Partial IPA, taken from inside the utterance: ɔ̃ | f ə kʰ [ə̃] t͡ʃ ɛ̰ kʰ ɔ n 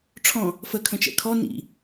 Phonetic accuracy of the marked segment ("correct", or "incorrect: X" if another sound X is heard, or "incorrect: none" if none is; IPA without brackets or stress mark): correct